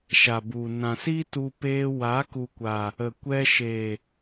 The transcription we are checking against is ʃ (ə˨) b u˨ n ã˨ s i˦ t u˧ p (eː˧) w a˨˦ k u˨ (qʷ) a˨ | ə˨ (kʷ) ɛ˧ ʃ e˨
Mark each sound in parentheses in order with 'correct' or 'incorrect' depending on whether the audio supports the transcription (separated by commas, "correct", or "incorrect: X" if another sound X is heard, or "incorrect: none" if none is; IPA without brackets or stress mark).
incorrect: a˨, correct, incorrect: kʷ, correct